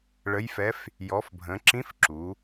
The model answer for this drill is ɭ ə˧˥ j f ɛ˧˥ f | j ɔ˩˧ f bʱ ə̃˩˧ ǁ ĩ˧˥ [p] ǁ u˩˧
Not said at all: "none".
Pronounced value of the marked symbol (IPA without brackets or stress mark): f